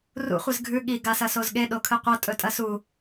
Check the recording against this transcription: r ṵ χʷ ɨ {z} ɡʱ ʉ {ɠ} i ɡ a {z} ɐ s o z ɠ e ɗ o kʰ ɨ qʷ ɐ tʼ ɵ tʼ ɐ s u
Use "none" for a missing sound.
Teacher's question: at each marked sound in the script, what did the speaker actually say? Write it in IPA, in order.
z, ɠ, s

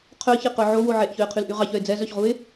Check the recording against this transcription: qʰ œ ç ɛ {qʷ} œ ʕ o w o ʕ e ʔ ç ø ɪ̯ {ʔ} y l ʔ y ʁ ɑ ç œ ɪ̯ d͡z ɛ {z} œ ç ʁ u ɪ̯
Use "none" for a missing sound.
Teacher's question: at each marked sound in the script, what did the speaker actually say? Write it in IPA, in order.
q, qʰ, z

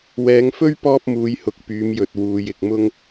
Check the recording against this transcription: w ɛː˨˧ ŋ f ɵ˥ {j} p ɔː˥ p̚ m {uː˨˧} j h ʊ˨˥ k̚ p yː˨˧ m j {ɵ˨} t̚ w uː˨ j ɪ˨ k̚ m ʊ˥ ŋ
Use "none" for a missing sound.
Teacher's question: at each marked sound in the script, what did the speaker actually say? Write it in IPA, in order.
ɥ, uː˨˧, ɵ˨

